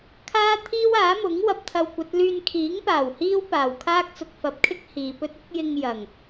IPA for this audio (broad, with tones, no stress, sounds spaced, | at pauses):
kʰ aː˥ t̪ʰ iː˥ w aː˨˥ m ʊ˨˥ ŋ w ɐ˧ p̚ t̪ʰ ɐ˧ w kʷ ɐ˨˥ t̚ l yː˧ n kʰ iː˨˥ ŋ p aː˨˩ w h iː˥ w p aː˨˩ w kʰ aː˥ k̚ t͡s ʊ˨ k̚ f ɐ˨˥ p̚ kʰ ɪ˥ k̚ h iː˨ p ɵ˥ t̚ ɪ˥ k̚ j ɪ˧ ŋ j ɐ˨˩ ŋ